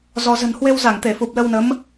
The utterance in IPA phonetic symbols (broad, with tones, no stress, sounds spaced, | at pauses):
z ɔ˧ z ə̤˨˩ n h w e˧ w z a˧˩ ŋ t̪ e˧˩ f u˨˩ p̚ l ə˧ w n ə˨˦ m